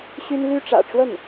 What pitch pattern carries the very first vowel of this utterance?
high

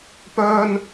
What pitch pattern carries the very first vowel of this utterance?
high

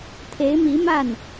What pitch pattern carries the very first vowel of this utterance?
rising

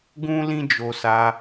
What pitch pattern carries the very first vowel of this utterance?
high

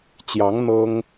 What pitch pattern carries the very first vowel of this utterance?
rising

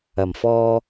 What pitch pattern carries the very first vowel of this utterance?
low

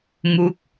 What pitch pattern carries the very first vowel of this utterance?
falling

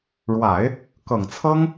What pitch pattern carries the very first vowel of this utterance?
low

